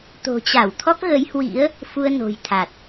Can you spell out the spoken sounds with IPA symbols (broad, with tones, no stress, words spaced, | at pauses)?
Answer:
t̪o̤˨˩t͡ɕa˧˩w t̪ʰɔ˦˥k̚ɣə˨˦jhwḭ˧˥ə̯ | fu˧ə̯no̤˨˩jt̪ʰa˨˩t̚